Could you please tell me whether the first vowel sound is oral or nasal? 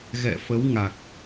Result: oral